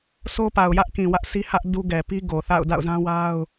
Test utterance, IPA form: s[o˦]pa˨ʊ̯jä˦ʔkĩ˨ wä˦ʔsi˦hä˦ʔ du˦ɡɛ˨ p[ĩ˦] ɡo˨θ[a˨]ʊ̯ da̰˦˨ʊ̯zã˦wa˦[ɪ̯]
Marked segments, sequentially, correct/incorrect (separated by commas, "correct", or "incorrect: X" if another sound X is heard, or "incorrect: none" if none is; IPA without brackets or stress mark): correct, incorrect: i˦, incorrect: a̰˦˨, incorrect: ʊ̯